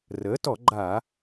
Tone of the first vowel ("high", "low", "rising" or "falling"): rising